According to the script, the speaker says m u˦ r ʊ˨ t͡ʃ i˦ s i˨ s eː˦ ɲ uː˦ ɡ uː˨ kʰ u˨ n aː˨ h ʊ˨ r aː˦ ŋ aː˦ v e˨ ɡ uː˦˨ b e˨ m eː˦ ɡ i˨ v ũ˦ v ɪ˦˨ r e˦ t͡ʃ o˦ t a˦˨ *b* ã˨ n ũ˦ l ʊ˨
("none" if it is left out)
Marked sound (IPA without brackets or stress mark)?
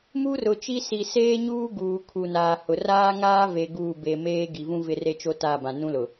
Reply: b